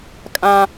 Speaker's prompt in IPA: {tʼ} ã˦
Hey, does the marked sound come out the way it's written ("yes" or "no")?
no